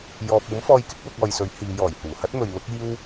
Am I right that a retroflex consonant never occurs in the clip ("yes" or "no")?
yes